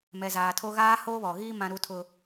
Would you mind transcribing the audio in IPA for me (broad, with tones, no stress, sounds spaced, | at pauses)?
m ɛ˨ z aː˨ tʰ o˦ ɣ aː˦ h oː˦ β ɔ˨ ɣ iː˦ m ã˦ ɾ u˦ tʰ ʊ˦